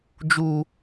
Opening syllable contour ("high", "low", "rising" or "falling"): low